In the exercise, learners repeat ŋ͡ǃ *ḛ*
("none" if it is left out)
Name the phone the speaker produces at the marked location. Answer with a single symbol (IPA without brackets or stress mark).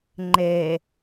e